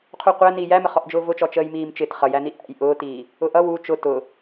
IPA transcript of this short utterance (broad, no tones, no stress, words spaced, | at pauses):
qʰuqʷæ niːjæməχɔʔ d͡ʒʊːvʊt͡ʃɔ t͡ʃəːjmiːmt͡ʃɪt χʌjæni ʔæ̰j ʔʊːtiː | ʊʔʌ wu t͡ʃʊ tʊ